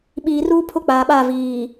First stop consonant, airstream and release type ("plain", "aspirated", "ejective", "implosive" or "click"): implosive